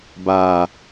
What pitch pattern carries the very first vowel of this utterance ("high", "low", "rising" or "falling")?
low